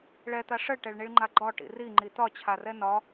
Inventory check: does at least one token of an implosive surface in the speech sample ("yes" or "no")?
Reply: no